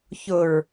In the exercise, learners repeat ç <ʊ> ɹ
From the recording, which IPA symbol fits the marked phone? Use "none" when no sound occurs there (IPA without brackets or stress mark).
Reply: ʊ